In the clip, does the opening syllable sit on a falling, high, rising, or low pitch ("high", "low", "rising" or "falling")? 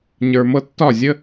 low